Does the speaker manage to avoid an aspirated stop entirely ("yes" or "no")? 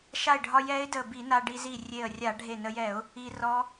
yes